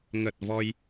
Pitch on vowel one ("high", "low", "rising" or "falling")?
low